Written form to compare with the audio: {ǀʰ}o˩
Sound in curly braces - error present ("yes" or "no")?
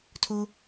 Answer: yes